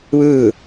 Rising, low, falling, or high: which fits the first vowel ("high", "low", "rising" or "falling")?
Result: falling